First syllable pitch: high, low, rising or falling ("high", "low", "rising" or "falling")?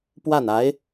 falling